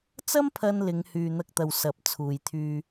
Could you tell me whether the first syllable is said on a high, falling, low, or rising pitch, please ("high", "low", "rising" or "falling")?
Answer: high